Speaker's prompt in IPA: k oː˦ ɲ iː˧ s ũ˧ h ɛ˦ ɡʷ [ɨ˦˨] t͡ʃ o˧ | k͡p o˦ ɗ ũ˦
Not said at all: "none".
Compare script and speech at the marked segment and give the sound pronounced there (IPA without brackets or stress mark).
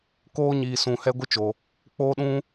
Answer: ɨ˦